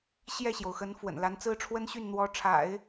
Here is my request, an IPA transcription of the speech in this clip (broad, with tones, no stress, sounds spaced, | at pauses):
ɕ j ɛ˥˩ ɕ j o˩ ʊ̯ x ə˧˥ n f w ə̰˨˩ n l a˧˥ n t͡s ɹ̩˥ ʈ͡ʂʰ w ə˥ n ɕ y˥˩ n n̪ w ɔ˧˥ ʈ͡ʂʰ a̰˨˩˦ ɪ̯